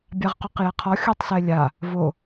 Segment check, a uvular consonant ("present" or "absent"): present